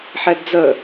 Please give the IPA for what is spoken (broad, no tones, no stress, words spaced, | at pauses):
ħɛdd͡zə